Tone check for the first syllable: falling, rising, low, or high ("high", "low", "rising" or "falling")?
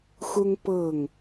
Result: high